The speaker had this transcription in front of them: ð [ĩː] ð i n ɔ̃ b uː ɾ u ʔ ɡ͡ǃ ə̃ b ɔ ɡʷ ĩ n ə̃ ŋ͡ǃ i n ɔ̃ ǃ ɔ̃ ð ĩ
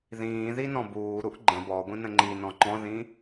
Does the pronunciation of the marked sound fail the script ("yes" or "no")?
no